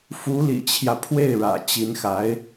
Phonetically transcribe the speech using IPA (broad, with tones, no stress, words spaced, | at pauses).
fu˧˥lḭ˨˩t͡ɕʰjä˦ pʰwe˥˩ɪ̯ɻä̰˨˩ t͡ɕi˧˥nxa˧˥ɪ̯